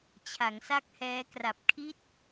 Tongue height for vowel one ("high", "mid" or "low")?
low